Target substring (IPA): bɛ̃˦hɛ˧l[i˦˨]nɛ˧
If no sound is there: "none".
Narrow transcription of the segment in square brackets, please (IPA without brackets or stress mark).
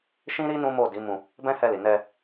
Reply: i˨